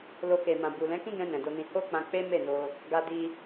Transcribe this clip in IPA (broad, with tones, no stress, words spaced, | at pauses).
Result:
lo˧ke˨mã˨bu˨ lɛ̃˨˦kĩ˦ɡɛ̃˧ nɛ̃˨do˧nĩ˧ ho˦k͡pã˧k͡pe˦ me˦˨no˧ | ɡa˧di˧